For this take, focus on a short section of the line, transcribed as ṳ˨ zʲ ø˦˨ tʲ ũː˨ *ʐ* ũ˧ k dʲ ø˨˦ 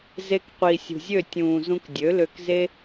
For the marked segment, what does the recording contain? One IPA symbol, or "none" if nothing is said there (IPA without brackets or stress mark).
z